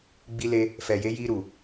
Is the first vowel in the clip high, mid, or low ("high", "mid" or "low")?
high